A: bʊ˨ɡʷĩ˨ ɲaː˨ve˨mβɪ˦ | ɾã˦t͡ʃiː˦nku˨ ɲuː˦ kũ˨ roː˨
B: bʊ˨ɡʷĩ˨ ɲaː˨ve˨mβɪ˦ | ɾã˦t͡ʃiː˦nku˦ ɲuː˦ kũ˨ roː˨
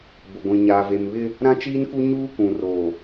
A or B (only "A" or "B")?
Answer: B